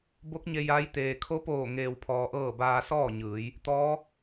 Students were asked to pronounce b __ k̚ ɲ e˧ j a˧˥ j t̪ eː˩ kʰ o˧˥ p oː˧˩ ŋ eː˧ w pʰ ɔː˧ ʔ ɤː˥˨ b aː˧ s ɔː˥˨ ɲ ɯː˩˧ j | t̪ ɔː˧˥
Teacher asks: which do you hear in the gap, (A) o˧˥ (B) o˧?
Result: A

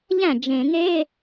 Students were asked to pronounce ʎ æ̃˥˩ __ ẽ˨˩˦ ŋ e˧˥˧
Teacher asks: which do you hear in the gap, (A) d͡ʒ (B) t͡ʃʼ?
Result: A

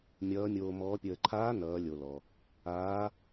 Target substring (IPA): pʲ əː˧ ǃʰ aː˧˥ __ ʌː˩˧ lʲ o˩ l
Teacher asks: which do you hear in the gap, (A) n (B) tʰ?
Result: A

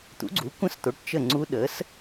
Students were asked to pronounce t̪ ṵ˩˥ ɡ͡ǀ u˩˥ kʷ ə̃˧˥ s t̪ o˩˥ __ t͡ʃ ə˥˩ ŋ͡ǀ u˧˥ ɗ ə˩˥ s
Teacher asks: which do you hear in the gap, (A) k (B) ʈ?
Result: B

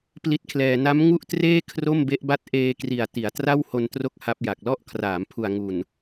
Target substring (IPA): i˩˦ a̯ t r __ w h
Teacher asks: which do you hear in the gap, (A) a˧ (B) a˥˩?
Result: B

